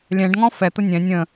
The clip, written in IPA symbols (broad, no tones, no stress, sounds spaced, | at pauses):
lʲ ɛ̃ ɖ ŋ ɔ̃ f ɛ t̪ ə nʲ ɛ̃ nʲ ə̃